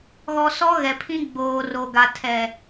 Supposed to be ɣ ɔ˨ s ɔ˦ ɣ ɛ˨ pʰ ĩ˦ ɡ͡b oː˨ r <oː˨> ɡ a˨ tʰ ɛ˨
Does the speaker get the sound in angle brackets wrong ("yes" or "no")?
yes